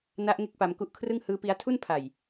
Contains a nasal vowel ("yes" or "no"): no